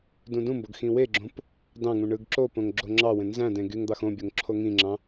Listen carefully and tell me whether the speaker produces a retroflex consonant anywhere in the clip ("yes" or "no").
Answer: yes